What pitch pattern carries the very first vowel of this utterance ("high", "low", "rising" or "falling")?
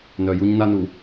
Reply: low